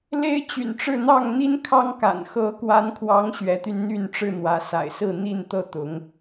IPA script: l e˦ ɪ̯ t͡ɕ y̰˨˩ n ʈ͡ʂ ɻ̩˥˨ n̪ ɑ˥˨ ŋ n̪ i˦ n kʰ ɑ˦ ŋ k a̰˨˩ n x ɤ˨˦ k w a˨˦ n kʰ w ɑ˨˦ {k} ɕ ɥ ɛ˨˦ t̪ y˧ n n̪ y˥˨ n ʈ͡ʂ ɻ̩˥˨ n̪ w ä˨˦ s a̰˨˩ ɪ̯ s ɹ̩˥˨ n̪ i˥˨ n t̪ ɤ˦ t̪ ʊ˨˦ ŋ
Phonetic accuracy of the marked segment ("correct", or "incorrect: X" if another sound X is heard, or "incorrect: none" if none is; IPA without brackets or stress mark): incorrect: ŋ